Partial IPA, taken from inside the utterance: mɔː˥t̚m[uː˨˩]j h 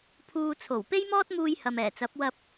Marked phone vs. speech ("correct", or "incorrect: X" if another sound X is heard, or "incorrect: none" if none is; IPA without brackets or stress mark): incorrect: uː˧